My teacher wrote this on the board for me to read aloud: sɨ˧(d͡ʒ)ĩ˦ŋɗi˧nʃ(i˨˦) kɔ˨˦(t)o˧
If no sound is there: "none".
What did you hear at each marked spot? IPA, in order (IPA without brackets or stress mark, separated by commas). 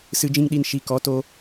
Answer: d͡ʒ, i˨˦, t